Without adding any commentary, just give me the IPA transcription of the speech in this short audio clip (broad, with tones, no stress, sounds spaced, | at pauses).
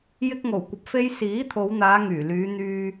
j ɪ˥ k̚ ŋ o˨˩ w kʷ ɐ˨ p̚ f e˥ j s iː˨˥ t̪ʰ o˨˧ w n̪ aː˨˧ ŋ yː˨˩ l yː˨˧ n̪ yː˧